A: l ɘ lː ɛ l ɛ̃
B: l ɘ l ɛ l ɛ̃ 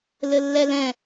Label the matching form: A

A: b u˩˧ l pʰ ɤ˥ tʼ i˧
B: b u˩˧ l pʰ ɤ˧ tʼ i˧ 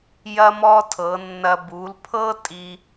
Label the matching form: A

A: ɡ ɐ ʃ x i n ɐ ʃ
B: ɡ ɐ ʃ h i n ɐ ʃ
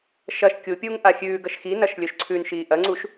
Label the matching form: A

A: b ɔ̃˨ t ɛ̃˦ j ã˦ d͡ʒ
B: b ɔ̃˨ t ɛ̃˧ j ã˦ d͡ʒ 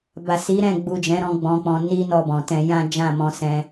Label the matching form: B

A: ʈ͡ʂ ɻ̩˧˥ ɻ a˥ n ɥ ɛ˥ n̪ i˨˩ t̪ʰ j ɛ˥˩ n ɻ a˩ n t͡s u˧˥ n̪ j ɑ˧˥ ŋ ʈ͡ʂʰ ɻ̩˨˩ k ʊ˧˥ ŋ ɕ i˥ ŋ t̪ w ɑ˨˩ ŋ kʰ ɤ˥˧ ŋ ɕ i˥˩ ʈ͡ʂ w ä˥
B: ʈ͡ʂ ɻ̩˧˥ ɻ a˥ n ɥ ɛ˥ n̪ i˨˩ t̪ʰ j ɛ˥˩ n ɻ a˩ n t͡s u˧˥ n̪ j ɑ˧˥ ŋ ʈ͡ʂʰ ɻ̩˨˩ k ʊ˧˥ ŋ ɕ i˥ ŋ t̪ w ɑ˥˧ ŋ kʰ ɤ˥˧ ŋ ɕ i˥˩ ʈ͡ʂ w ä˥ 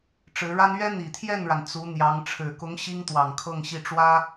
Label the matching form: A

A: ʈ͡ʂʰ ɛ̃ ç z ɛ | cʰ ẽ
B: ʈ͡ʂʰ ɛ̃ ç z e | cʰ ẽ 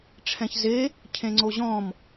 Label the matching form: B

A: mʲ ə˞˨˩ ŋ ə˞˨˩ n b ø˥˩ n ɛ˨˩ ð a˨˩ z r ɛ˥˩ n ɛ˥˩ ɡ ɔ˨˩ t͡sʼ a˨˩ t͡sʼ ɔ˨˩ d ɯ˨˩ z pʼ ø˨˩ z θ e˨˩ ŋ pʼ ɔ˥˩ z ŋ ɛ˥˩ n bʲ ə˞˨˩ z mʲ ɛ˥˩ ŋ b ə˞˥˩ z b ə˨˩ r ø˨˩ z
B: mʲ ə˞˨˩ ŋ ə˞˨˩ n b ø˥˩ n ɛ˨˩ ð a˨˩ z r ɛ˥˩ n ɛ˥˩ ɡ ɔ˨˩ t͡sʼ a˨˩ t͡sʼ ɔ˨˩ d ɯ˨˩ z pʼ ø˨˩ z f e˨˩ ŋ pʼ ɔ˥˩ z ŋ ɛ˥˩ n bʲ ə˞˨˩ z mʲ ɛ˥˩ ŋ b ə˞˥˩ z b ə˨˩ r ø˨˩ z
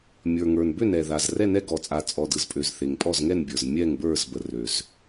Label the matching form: A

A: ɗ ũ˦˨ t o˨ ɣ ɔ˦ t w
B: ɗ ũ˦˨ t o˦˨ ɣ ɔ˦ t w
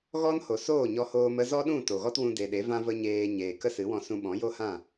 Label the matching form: A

